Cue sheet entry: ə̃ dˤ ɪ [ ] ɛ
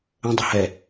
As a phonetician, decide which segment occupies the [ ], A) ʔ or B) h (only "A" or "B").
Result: B